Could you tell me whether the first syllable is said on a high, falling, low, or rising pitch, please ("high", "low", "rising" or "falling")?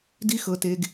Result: high